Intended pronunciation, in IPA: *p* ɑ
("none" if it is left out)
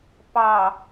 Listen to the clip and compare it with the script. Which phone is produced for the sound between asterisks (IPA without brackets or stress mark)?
p